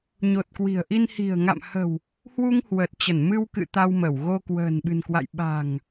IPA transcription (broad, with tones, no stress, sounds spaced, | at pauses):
ɲ o˨˩ t̚ k w i̤˨˩ ə̯ ʔ i˧ n h i̤˨˩ ə̯ ŋ a̰˧˨ m h ə̤˨˩ w | h w u˧ ŋ h w ə˨˩ t̚ t͡ɕ ə˧˩ n m ɨ˧ w k ɨ̰˧˨ t̪ a˧ w m ə˧˩ w ɣ o˧ k w ə̤ː˨˩ n ɓ ɨ̤˨˩ n k w a̰˧˨ j ɓ a̤˨˩ ŋ